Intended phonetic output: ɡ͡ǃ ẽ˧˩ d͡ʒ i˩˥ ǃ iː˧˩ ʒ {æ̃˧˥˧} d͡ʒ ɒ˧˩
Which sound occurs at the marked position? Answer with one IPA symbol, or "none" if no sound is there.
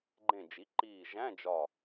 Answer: æ̃˧˥˧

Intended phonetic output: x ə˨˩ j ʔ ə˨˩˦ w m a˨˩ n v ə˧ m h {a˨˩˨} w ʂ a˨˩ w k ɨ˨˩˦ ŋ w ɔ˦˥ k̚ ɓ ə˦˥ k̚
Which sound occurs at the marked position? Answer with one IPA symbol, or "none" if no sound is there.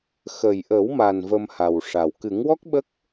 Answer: a˨˩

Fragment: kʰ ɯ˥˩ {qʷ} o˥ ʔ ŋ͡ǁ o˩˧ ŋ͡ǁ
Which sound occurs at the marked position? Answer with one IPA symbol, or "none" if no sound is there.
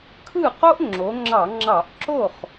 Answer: q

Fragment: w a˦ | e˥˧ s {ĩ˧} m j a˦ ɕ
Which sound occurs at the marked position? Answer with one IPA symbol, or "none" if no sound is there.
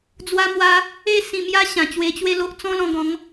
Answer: ĩ˧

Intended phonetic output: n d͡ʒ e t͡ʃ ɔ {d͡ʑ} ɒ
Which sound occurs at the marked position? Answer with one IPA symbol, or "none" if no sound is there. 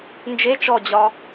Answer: d͡ʑ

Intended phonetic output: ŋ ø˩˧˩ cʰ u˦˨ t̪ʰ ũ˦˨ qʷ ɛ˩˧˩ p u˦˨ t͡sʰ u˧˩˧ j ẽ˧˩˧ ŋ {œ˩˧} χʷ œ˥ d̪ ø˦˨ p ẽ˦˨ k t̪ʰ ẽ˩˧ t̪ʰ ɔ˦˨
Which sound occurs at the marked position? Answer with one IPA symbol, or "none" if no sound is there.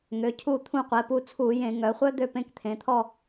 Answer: œ˩˧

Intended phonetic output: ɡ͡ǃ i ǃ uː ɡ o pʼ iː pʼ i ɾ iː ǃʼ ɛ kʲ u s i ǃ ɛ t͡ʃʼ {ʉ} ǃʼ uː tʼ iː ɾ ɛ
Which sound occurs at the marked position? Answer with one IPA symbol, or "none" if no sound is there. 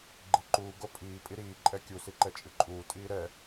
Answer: ɨ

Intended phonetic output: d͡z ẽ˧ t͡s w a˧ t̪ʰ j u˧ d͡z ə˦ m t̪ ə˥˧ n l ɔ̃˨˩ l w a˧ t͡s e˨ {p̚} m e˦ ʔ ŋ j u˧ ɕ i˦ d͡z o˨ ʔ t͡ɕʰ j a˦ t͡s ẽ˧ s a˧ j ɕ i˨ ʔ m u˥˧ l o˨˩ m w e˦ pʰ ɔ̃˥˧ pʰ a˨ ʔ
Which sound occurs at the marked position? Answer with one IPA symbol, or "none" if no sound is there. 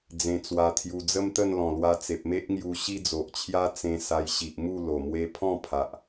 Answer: p̚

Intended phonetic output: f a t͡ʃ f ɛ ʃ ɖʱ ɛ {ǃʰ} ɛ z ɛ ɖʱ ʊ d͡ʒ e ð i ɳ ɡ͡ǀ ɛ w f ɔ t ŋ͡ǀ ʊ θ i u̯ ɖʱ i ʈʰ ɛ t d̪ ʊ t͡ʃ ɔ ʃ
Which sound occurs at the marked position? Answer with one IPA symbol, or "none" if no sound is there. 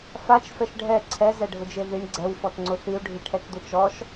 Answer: ǀʰ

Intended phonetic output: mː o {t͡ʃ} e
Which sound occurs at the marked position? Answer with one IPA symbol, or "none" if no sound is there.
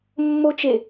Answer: t͡ʃ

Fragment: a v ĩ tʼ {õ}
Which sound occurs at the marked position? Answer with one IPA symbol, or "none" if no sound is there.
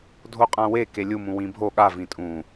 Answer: ũ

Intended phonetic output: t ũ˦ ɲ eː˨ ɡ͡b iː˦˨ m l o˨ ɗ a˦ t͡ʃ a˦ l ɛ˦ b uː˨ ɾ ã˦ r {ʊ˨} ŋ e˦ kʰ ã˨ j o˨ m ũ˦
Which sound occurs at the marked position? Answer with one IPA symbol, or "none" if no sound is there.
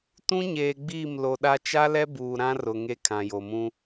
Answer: ʊ˨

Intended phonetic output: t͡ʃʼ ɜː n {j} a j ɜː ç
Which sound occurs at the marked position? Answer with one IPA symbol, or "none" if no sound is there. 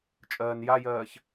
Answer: j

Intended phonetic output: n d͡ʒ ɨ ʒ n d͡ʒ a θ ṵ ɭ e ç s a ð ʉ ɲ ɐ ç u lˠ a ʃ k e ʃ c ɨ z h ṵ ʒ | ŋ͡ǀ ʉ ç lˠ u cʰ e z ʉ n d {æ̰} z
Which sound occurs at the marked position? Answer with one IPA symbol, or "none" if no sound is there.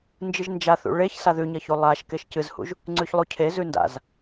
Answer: a̰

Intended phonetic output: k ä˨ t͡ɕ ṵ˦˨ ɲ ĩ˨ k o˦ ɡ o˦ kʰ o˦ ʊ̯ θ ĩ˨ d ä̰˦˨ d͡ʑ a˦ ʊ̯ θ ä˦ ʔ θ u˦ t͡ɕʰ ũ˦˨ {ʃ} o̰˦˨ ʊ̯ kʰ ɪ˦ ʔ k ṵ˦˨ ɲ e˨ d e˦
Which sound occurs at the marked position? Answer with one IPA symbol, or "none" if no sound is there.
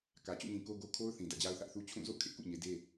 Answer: z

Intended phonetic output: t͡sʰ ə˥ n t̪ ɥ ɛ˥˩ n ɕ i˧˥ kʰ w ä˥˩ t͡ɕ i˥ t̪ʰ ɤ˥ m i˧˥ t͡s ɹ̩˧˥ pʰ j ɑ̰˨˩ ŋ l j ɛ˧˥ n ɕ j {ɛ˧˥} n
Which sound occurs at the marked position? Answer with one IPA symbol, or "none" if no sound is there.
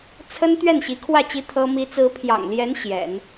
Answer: ɛ̰˨˩˦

